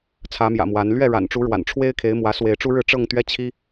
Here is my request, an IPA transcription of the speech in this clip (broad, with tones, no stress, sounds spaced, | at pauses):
t͡sʰ ä˨˦ m j ä̰˨˩ m w a˨˦ n l ɥ ɛ˥˨ ɻ a̰˨˩ n ʈ͡ʂ u˨˦ ɻ w a̰˨˩ n ʈ͡ʂʰ w e˦ ɪ̯ kʰ e˨˦ ɪ̯ m w ä˨˦ s w e˨˦ ɪ̯ ʈ͡ʂ u˦ ɻ ɻ̩˥˨ ʈ͡ʂ ɤ˥˨ ŋ t̪ ɥ ɛ˦ t͡ɕʰ i˦